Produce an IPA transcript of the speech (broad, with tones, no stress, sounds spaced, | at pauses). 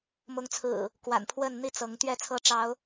m ʊ˨˦ ŋ t͡sʰ ɹ̩˨˩ | k w a̰˨˩ n pʰ w ə˥˨ n n̪ i˥˨ t͡s ɤ˨˦ ŋ t̪ ɥ ɛ˥˨ t͡sʰ ɤ˥˨ ʈ͡ʂ ɑ˨˦ ʊ̯